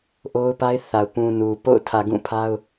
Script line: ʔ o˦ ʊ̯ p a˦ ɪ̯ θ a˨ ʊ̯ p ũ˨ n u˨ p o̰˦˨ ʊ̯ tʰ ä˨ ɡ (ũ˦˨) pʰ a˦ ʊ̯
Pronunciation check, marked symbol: correct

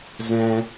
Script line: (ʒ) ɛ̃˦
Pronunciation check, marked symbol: incorrect: z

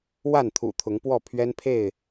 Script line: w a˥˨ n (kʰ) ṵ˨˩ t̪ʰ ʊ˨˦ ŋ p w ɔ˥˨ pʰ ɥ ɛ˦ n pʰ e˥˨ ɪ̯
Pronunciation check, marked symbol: incorrect: t̪ʰ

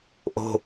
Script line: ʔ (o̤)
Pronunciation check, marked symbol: correct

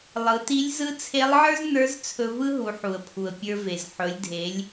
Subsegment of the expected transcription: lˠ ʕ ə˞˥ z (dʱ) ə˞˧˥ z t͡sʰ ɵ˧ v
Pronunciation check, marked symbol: incorrect: n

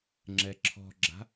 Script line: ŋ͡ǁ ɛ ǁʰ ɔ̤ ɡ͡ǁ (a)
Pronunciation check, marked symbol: incorrect: a̤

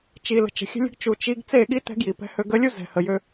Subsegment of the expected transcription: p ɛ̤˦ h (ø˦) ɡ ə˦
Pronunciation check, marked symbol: correct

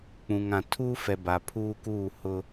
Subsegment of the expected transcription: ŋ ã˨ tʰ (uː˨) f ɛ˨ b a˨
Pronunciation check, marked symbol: incorrect: uː˦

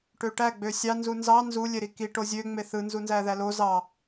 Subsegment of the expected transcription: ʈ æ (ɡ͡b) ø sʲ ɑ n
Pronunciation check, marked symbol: correct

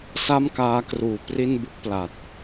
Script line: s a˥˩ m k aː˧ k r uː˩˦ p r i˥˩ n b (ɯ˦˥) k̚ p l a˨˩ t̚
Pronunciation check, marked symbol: correct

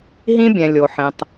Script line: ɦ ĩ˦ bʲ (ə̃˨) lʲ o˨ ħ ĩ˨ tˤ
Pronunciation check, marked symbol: incorrect: ɛ̃˨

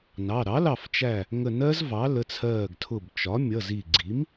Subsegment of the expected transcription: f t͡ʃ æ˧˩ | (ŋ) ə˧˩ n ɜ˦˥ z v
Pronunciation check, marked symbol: correct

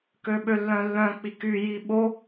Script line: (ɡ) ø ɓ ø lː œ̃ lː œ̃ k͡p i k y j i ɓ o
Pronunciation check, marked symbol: incorrect: k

